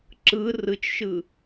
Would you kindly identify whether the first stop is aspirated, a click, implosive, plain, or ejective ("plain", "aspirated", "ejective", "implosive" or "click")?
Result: click